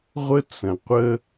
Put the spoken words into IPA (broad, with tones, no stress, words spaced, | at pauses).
ʁʷə˥ t͡sə̃˩qʷə˥